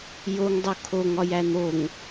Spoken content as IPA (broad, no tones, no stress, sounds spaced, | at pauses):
j o ŋ dˤ o kʰ o ŋ ɒ j æ n̪ o ŋ